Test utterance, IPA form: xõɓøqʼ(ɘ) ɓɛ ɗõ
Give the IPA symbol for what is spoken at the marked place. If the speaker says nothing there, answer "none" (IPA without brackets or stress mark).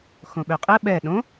ɘ